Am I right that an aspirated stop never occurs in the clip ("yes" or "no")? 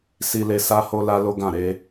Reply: yes